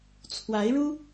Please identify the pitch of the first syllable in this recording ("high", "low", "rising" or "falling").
rising